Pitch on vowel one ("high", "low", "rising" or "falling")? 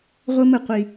high